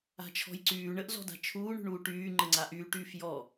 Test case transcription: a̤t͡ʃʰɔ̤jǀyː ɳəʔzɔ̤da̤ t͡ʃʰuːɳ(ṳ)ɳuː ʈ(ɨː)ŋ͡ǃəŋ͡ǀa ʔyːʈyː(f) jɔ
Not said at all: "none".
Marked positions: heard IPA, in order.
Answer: ṳ, yː, f

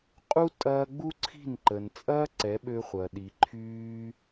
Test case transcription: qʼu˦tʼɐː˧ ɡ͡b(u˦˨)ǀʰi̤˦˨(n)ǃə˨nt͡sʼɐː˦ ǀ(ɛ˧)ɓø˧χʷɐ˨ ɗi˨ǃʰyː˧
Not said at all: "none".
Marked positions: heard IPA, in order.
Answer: u˦, n, ɛ˨˦

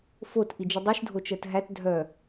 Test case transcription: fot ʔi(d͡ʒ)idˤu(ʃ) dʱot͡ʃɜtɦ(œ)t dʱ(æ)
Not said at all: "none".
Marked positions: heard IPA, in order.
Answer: d͡ʒ, ʃ, æ, œ

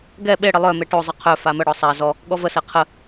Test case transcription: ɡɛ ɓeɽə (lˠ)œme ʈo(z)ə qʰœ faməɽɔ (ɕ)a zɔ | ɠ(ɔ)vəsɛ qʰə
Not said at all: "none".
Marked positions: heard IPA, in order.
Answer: lˠ, zˤ, sˤ, ɔ

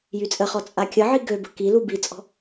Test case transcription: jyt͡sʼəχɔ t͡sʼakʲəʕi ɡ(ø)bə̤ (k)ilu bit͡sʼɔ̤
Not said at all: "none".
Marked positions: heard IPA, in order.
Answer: ø, k

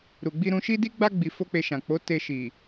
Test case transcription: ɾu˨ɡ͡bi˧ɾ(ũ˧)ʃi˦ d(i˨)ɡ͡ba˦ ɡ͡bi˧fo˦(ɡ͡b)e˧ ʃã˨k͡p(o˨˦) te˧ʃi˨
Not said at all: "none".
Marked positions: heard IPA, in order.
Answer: ũ˧, i˦, k͡p, o˨˦

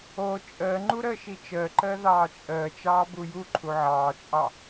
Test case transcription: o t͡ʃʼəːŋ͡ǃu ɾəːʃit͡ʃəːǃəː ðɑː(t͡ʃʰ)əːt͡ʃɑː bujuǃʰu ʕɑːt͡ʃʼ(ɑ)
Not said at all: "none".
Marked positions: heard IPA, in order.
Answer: t͡ʃʼ, ɑ

